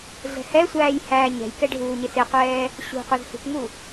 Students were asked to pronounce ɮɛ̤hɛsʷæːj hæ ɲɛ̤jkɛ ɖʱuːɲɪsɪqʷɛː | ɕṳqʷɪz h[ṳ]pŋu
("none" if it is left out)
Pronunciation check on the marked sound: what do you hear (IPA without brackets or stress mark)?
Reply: ṳ